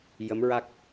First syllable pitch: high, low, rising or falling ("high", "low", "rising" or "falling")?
rising